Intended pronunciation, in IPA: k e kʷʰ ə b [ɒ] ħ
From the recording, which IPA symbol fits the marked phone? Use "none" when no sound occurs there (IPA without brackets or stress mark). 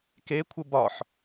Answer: ɒ